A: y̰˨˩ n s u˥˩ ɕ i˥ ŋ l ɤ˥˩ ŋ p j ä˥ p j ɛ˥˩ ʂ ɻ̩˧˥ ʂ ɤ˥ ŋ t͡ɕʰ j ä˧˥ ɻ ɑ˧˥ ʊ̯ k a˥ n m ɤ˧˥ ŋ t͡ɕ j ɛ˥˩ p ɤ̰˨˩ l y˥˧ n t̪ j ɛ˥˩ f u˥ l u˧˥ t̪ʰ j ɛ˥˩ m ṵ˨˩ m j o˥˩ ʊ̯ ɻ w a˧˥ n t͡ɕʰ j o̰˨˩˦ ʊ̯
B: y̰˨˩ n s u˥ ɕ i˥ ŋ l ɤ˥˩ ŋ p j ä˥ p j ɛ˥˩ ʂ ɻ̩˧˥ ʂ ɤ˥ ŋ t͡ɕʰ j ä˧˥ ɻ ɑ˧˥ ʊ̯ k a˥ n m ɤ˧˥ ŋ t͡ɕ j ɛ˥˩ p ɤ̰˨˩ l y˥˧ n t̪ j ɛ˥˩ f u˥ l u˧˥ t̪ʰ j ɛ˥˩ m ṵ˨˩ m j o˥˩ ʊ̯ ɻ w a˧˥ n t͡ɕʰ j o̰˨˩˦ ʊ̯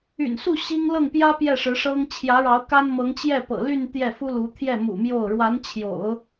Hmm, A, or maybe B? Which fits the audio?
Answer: A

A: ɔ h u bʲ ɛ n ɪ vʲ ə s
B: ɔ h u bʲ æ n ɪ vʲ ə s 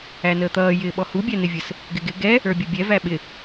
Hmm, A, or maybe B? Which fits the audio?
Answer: B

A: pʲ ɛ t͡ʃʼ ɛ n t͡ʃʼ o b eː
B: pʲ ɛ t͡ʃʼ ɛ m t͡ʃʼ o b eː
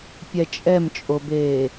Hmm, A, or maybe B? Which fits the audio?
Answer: B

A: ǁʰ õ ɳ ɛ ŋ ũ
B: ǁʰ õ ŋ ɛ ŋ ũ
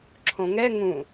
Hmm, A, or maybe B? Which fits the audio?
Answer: B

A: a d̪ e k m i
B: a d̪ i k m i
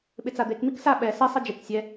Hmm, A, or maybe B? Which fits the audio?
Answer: A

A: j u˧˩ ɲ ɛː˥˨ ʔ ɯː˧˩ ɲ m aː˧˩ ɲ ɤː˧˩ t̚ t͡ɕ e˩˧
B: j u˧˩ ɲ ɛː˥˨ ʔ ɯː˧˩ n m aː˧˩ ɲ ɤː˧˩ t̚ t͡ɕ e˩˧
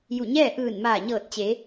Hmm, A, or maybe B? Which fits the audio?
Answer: B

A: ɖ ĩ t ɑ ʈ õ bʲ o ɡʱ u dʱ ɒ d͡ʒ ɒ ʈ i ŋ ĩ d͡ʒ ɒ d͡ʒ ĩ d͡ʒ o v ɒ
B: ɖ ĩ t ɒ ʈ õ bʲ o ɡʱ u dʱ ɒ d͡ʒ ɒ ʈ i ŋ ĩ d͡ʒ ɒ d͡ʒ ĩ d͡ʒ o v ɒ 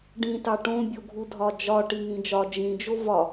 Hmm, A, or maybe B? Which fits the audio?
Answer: A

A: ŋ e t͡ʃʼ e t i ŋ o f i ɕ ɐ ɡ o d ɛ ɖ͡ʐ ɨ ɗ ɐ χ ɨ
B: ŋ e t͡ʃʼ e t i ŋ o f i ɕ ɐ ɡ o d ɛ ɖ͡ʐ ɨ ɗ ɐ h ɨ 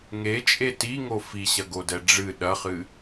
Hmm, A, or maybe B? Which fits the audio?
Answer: A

